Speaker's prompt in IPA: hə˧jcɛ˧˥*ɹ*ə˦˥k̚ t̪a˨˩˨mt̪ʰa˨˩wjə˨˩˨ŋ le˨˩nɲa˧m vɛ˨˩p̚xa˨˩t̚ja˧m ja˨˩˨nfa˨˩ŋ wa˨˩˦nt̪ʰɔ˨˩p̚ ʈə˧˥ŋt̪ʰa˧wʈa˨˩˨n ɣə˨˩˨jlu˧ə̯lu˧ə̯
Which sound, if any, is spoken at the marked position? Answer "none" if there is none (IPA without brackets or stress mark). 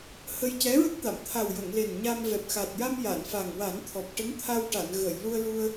ɹ